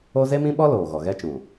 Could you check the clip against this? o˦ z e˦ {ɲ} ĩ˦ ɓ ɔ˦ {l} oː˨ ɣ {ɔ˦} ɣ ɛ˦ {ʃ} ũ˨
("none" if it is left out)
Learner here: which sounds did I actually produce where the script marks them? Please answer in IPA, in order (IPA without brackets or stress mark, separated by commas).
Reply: m, l, ɔ˨, t͡ʃ